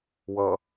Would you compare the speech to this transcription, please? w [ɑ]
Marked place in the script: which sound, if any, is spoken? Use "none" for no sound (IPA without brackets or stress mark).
ʌ